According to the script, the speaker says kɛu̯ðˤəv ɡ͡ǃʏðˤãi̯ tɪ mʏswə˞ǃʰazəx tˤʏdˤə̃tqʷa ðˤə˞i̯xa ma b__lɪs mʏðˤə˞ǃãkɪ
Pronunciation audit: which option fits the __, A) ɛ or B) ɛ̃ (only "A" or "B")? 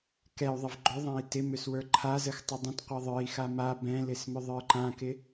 B